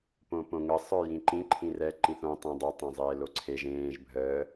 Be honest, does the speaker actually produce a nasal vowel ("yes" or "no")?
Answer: yes